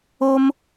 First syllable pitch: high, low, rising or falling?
high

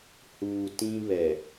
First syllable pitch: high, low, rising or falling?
low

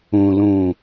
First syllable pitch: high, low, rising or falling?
low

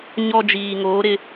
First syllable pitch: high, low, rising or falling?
high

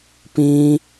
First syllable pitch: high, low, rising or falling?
high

